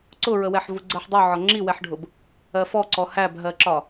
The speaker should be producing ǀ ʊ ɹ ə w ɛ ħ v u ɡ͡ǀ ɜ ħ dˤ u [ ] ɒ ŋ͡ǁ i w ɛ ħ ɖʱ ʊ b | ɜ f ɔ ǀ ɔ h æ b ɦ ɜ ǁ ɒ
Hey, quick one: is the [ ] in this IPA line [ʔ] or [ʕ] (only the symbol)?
ʕ